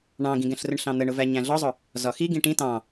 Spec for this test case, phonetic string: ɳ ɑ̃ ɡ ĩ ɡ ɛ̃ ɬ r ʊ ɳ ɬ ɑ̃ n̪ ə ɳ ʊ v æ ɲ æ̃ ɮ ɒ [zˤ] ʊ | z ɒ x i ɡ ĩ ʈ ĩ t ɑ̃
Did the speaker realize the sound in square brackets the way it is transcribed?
yes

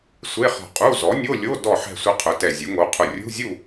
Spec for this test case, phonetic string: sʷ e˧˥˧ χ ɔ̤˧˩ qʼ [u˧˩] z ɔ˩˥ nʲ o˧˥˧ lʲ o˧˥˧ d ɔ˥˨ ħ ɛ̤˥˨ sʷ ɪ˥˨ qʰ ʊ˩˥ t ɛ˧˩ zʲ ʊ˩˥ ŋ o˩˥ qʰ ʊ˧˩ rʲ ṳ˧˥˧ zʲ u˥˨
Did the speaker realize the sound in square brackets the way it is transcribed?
no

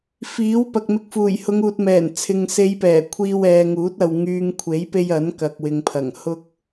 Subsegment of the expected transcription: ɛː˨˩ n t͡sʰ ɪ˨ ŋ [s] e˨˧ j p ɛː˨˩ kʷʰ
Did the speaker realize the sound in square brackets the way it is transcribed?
yes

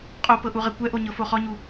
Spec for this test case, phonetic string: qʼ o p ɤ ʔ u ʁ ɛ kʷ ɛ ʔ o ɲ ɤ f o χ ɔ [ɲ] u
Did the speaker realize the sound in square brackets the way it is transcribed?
yes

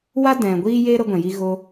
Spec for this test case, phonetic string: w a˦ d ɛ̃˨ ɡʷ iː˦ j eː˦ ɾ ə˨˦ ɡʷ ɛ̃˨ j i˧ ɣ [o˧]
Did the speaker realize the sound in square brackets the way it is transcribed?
yes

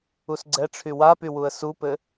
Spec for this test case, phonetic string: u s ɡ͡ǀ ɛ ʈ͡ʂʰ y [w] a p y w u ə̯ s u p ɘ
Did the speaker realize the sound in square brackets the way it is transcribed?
yes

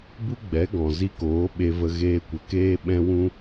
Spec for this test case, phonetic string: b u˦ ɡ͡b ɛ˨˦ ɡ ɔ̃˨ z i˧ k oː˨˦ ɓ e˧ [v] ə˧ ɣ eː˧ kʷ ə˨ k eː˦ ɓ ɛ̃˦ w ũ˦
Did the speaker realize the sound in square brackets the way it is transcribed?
yes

